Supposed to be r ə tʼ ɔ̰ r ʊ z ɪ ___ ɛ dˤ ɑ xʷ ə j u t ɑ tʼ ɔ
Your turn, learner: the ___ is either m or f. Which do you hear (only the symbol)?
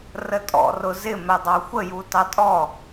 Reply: m